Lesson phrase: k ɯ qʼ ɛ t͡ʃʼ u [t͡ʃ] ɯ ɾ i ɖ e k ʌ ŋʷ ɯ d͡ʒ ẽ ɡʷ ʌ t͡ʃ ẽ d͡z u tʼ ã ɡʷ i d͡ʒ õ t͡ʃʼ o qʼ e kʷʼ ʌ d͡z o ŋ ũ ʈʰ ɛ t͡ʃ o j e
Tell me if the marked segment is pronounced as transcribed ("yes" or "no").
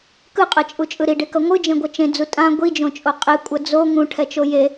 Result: no